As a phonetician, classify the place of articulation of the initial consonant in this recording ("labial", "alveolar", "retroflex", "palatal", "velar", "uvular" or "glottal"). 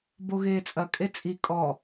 labial